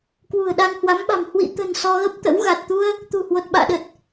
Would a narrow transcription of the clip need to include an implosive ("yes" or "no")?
yes